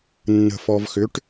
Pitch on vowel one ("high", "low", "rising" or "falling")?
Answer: low